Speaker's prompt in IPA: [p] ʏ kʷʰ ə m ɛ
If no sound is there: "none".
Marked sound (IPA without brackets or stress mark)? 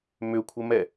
m